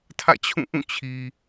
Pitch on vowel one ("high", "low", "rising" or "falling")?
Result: falling